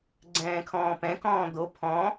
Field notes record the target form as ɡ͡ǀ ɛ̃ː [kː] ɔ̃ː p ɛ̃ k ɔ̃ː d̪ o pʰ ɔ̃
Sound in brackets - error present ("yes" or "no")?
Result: yes